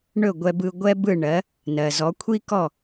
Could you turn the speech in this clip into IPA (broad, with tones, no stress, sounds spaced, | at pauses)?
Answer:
ɳ ɵ˥˩ ɡʷ ɛ˧ b ɯ˧ ɡʷ ɛ˥ b ɯ˥˩ ɳ ɜ˩˥ | n ɜ˩ z ɔ˩˥ kʷʰ i˥ k ɔ˥˩